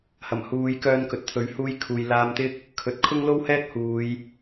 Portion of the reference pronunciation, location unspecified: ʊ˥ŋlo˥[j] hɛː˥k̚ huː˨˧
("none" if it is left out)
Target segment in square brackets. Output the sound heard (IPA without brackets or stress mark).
w